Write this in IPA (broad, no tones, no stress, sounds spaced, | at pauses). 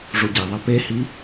ʐ o ɟ æ ðˤ æ p e h i